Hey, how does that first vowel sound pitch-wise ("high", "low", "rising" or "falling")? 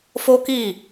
high